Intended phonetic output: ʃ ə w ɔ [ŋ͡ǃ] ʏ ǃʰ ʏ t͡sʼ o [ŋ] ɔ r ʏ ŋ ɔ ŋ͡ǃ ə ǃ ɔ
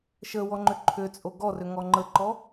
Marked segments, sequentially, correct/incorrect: correct, incorrect

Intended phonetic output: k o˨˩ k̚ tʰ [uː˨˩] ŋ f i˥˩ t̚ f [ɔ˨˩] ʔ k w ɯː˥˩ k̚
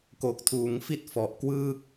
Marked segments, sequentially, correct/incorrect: incorrect, correct

